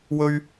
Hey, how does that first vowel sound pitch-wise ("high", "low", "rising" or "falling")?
high